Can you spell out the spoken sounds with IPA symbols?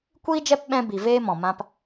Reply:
kʷiː˦d͡ʒɛ˦p ɓɛ̃˧bi˨ veː˧ mɔ̃˨mã˧p

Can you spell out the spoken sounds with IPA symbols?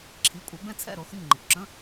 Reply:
ǁʰi˩˧˩kʷʼɛ˩˧ bɛ̃˥˩t͡sʰɛ̰˥˩ɾo˩˧ xɨ˧˩ɲŋ͡ǃɪ˩kʷǁə̃˧˥˧

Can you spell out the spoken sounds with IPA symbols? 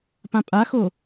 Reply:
pãpʼaxo

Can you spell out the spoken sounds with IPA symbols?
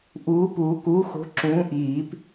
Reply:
ʔuː˨˥puː˨˩˦ kuː˨˥xo̤˨˥ ǁũː˨˥ʔiː˨˩˦p

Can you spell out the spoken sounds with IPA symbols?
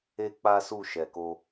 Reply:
e˦k͡pa˦su˦˨ ʃɛ˨ko˧

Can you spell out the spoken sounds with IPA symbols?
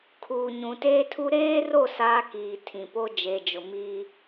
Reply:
kʰuː˨ɲũ˨teː˦tʰu˦ ɾeː˦ro˦˨ saː˦kiː˨tʰĩ˨po˦ d͡ʒe˨d͡ʒʊ˨ mi˦

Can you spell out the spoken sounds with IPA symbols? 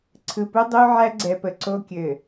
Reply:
ǀʰɯ˨pu˦ dˤu˦ʕæ˦ɡ͡ǀɛ˨pə˨ ǀo˦kʲɘ˨

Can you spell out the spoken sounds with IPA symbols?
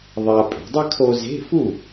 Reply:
ðˤa˧ pʼe̤˩˧dˤɛ˥ kʰo˥ ze̤˧˥˧fu˥˩

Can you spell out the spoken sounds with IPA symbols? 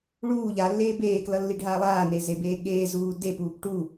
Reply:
ɭuː ʎalːeː beːklʌ lːiɖʱaːlˠaːne zebeːɠeːzuː depuːp ʈu

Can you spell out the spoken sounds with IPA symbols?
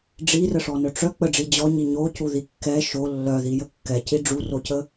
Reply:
ɖ͡ʐirəʂɔnœ ʈ͡ʂœ k͡pəɖ͡ʐi d͡ʑɔɲi ɲocuði kːɛ ʃo lːœðijə kːɛci ɖ͡ʐurocə

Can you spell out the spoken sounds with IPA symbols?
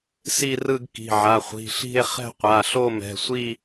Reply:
si˥˧rɯ˥˧ɡ ki̤˩˧˩ʕa˩˧˩χʷi̤˩˧˩ɬi̤˥˧e̯ χɛ̤˥˧qʷa˩˧˩ɬo˥˧ mɛ̤˩˧˩sʷi˥˧

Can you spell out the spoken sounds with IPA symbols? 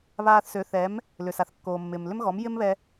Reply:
βaː˧θsø˩˥θɛ˩˥m | lʏ˩sa˩θkːoː˩mːɪː˩m lʏ˥mɣɔ˩˥m jɪ˥mβɛ˧

